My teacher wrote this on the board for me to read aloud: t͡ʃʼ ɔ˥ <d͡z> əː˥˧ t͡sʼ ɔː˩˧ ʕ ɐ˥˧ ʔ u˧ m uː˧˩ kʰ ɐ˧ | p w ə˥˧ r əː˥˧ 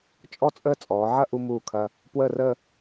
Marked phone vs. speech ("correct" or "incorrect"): incorrect